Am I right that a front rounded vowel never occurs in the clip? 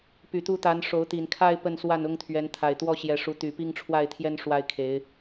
no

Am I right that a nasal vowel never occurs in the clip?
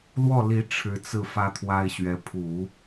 yes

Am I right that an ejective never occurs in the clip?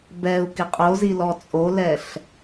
no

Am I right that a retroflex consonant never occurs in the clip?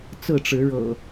no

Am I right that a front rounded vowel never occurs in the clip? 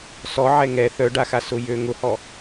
no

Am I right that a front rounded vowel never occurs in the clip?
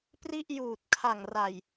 yes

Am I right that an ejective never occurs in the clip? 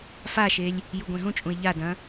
no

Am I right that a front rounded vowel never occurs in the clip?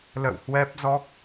yes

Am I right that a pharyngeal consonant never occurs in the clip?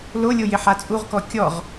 no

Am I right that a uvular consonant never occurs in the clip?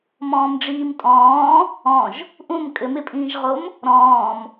no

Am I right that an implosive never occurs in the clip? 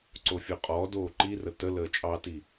yes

